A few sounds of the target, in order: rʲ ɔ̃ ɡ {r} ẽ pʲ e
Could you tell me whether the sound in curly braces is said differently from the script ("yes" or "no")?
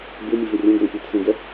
no